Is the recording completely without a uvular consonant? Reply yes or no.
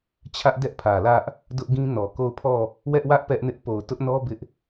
yes